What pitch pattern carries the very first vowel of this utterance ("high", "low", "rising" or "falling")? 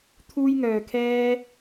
high